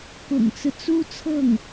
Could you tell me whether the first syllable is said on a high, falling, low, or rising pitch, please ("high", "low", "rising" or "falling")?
low